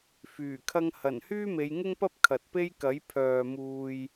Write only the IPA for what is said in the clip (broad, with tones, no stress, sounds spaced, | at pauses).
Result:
f yː˨˩ kʰ ɐ˥ ŋ h ɐ˨˩ n h yː˥ m e˨˧ j ŋ ɪ˥ ŋ p ɐ˥ p̚ kʰ ɐ˨ t̚ p e˥ j k ɐ˨˥ j pʰ œː˨ m uː˨ j